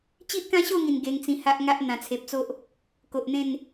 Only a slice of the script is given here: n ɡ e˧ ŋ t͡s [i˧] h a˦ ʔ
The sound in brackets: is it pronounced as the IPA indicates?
no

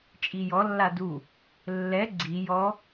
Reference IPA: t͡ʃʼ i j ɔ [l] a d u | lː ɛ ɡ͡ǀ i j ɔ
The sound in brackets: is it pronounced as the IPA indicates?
no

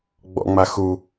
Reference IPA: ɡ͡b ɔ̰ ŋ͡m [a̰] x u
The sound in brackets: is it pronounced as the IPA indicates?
no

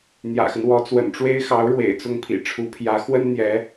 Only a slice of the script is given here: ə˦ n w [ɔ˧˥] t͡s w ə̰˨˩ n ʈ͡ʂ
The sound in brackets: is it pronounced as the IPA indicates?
yes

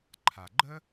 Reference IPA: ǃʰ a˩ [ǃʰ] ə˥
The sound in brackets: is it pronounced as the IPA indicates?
no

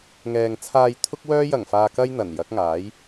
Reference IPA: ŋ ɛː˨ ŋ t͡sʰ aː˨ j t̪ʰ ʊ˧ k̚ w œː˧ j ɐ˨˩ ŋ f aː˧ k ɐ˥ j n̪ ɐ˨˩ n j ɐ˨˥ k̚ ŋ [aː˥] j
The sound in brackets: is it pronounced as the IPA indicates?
no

